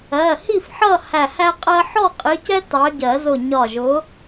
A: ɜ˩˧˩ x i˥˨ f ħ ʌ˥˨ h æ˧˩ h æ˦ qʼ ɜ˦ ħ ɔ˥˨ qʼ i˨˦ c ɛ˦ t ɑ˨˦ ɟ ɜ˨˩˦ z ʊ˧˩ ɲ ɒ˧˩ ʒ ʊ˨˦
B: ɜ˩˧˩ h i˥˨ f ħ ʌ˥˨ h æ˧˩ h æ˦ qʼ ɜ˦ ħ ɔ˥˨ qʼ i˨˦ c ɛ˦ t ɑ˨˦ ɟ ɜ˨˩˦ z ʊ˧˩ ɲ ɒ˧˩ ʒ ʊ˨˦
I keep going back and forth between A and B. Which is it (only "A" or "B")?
B